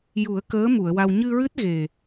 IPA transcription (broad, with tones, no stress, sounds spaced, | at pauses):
j u˨˩˦ ə̯ k əː˧˥ m u˨˩˨ ə̯ w a˧ w ɲ ɨ˧ ɹ ɨ˦˥ t̚ ɣ e˨˩